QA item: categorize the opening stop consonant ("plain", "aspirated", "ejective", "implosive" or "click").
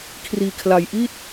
aspirated